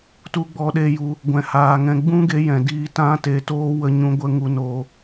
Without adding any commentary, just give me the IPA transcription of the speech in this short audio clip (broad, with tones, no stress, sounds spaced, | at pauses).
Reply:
t u˧ ɡ͡b ɔ˧ ɗ e˧ j u˧ | ɡʷ ɛ̃˨ h aː˨ ŋ ɛ̃˨ ɡ͡b ũ˦ ɡ e˧ j ɛ̃˨ d iː˧ t ã˦ t e˧ t oː˦ w ə˧ ɲ ũ˧ ɡʷ ə˧ ŋ u˧ n oː˧